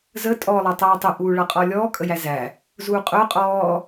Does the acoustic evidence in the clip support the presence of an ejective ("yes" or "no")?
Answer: yes